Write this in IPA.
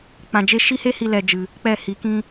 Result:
k͡p ã˨ d͡ʒ e˦ ʃ i˦ h e˦ h i˧ l ɛ˨ d͡ʒ ɨ˨ | k͡p ɛ˦˨ h i˨˦ k ĩ˦

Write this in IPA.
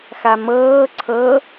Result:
x a m ɤː ǀʰ ɤ

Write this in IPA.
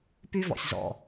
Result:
p y˦ v ɔ̰˨ sʲ z ɔ̰˨

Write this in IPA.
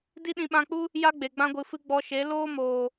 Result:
d i˦ ɗ ĩ˧ ɓ ã˧ k͡p u˦ | j a˦ ɡ͡b e˨ ɡ͡b ã˧ ɡʷ ɨ˨ f ɨ˧ ɡ͡b ɔ˧ ʃ e˨˦ l oː˦ m oː˨

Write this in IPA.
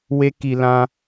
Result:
w e˦ k i˧ l ã˧

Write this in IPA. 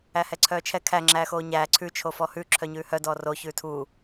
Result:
æ h ɛ ǀʰ œː t͡ʃʰ ɛ kʰ æ ŋ͡ǁ æː x oː ɲ æː ǀʰ ʉ t͡ʃʰ o f ɔ h ʉ ǁʰ œ ɲ ʉː h œ d ɔː r o ç ʉː tʰ u

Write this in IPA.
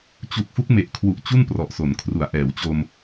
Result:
t͡ɕ u˨˩ k̚ f u˦˥ k̚ m e˨˩ ʔ kʰ w u˨˩ ʔ t͡ɕ u˥˩ n p r ɔ˨˩ ʔ s o˩˦ n kʰ r u˩˦ a̯ ʔ ɛː˩˦ w t͡ɕ o˧ m

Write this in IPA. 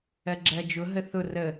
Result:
ɜ ɡ͡ǁ ɜ d͡ʒ ʊ ɦ ə θ ʊ r ə

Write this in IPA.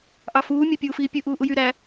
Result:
ʔ ɑ f uː mʲ ɑ pʲ uː f iː pʲ ɯ ʔ uː ʔ u j y ɾ æ

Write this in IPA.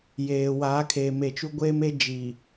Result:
j eː˨ w aː˨˦ kʰ eː˨ m e˨ t͡ʃ u˦ ɡʷ eː˦ m e˦ d͡ʒ iː˨

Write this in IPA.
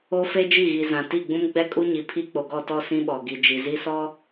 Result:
o˦ f e˦ d͡ʒ i˦˨ ɣ i˨ z ã˨ t i˦˨ ɡ͡b ũ˦ m ɡ͡b ɛ˦ kʼ u˦ ɲ i˨ pʰ i˦ k͡p o˨ ɡ ɔ˦˨ t ɔ˦˨ s ĩ˦ ɓ ɔ˨ ɡ i˨ d͡ʒ i˨ z i˦ s ɔ˦

